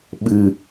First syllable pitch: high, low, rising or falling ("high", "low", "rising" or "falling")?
low